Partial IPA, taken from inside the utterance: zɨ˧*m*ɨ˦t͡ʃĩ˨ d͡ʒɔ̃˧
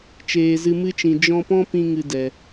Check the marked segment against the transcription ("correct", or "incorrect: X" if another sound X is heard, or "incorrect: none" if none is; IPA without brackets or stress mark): correct